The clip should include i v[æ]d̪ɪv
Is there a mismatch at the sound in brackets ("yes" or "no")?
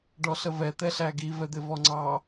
yes